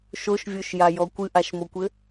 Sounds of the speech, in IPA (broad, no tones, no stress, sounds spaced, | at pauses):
ʃ o ʃ vʲ o ʃ j a j ɔ kʷ ɨ ʔ a ʃ m o kʷ ɘ